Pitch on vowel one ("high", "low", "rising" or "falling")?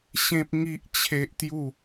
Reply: high